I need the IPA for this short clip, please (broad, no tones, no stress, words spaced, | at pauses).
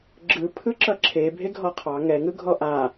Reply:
ɡ͡ǁɯ pʰɯǁʌǁʰe bʱeɡʱɔqʰɑ ŋɛ ŋɯɡʱɔʔa